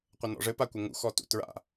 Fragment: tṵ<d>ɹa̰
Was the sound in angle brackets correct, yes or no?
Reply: no